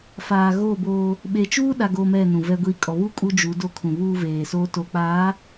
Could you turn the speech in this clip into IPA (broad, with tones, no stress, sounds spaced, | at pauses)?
f aː˨ ɣ oː˦˨ b oː˦ | ɓ e˨ t͡ʃ uː˦ ɗ a˨ ɡ o˨ m ɛ˦˨ n ũ˨ v ɛ˦ ɡʷ iː˦ kʼ ɔ˨ β u˦ kʼ u˦ d͡ʒ u˨˦ d o˦ kʰ ũ˨ β uː˦ v eː˨ s o˦ t o˨ k͡p aː˨˦